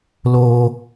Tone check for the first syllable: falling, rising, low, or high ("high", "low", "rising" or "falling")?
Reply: high